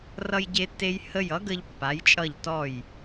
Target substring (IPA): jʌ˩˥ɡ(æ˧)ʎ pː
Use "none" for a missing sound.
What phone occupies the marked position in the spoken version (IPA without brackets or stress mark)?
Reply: ə˧